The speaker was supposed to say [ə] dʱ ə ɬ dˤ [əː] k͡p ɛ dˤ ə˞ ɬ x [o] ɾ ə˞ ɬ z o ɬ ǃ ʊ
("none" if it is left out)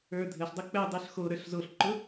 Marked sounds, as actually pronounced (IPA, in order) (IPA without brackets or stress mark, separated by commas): ə˞, ə, o